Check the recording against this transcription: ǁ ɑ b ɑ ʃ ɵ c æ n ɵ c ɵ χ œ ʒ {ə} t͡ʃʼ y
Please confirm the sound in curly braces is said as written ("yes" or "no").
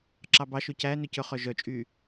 no